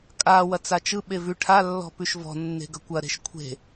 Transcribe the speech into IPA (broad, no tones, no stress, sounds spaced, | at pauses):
kʼ a w ɐ t͡s a t͡ʃ ɯ ɓ e v ʉ ʈʰ a lː ɔ̤ p ʉ ʃ v ɔ̤ nː e̤ ɡ ɐ kʷ ɐ ɾ e̤ ʃ kʷʰ e̤